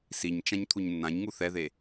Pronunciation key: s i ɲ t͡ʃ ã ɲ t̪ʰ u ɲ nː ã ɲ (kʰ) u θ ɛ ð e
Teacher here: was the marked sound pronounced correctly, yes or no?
no